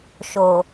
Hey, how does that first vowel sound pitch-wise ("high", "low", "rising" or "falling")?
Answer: low